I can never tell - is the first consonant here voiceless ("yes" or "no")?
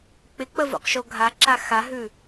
yes